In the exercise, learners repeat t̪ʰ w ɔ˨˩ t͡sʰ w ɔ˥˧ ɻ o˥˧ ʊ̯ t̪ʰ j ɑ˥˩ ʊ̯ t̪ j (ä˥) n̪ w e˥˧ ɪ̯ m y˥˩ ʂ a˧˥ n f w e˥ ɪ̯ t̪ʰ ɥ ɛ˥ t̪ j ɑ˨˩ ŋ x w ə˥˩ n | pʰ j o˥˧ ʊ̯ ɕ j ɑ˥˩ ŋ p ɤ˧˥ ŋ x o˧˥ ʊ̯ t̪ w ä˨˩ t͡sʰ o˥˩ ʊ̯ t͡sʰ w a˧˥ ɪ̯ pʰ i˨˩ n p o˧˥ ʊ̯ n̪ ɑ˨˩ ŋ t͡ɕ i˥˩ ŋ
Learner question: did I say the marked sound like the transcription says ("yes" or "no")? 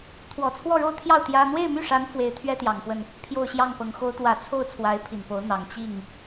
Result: yes